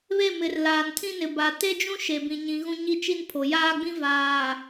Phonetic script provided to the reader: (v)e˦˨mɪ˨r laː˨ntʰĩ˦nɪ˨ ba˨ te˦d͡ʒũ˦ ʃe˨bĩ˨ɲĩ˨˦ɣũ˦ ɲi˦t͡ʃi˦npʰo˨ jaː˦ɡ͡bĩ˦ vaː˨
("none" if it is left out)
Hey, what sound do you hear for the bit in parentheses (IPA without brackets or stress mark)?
β